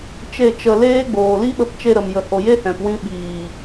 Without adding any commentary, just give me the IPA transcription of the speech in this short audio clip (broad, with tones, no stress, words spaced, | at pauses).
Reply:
t͡ʃe˦˨t͡ʃə˧ leː˦ɡ͡boː˨ li˦ɓə˧p t͡ʃe˧ɾə˨m jə˨ho˨je˦hɛ̃˨p wĩ˧ɓiː˨